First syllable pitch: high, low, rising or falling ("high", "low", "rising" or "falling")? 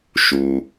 low